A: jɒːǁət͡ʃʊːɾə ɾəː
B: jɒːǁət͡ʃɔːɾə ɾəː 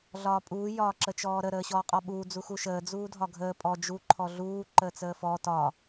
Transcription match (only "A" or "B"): B